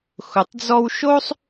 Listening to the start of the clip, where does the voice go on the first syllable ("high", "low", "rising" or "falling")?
low